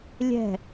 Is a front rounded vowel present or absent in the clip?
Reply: absent